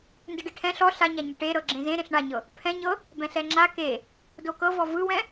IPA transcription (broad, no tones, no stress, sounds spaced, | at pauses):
n d ɯ ɖ e ʈʰ ɛ̃ ɬ ɔ ɬ a ɲ a ɲ ɪ ʈ e ɾ ɤ ɡ͡ǁ ẽ z ẽ ɾ ẽ ɬ ɳ a ɲ ɤ | pʰ ɛ̃ ɲ ɤ | b ɛ̃ ɬ ɛ ŋ͡ǁ a k e | d o k ɤ v ɔ v ɯ w ɛ̃